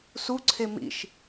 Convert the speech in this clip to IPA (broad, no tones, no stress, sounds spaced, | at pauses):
s u ǀʰ e m ḭ ʃ